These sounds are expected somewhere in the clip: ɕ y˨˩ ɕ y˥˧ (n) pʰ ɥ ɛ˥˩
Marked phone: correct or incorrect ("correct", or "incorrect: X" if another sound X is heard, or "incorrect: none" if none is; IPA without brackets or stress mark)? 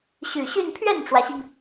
correct